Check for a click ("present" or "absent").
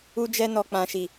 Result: absent